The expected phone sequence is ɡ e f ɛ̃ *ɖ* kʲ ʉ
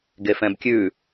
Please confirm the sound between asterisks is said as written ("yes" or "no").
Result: no